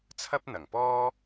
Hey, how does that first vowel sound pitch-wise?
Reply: high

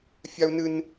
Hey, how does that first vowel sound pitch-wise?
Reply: high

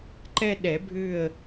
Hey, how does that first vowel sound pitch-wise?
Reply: high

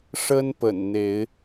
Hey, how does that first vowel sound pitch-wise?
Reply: high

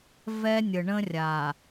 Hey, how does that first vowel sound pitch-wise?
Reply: high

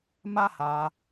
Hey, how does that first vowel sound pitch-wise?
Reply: high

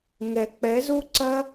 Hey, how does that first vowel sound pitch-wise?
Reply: low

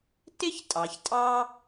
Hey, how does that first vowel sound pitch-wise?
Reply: high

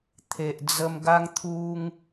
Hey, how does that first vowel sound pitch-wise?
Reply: low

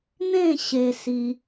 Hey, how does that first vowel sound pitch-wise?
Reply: falling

